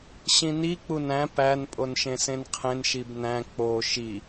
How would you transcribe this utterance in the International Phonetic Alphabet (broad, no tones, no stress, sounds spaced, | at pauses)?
ɕ ĩ n i k͡p u n æ̃ p æ n pʼ o n ʃ ẽ s ẽ n qʰ ẽ n ʃ i b n æ̃ k͡p o ʃ i